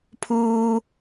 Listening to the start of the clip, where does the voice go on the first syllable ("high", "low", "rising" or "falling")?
low